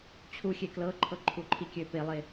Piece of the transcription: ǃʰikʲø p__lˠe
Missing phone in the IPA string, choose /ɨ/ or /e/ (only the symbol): e